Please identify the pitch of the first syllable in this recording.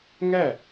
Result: falling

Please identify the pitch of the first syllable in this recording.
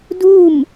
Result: falling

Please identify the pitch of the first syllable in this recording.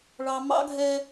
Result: low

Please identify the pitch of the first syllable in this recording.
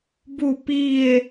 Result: falling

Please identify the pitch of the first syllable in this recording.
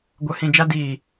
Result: low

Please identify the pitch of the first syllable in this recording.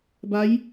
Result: rising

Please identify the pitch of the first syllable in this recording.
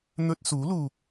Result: high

